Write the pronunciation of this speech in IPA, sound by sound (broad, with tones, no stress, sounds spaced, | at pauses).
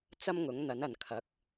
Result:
t͡s ɐ˥ m ŋ ʊ˨˥ ŋ n̪ ɐ˨˥ n ɐ˨ n kʰ ɐ˨˥ k̚